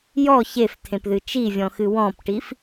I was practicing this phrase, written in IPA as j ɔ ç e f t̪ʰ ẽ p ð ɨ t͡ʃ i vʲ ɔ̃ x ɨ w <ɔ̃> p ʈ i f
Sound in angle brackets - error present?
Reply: no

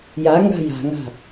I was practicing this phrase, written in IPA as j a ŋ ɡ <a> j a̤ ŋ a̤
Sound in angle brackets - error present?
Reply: yes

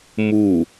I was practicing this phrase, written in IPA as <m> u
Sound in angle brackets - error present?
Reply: no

